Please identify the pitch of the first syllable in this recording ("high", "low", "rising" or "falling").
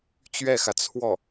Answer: falling